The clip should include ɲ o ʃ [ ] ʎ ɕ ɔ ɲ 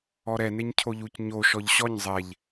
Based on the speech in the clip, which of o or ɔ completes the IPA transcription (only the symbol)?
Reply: ɔ